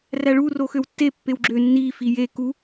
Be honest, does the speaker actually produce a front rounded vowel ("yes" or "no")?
yes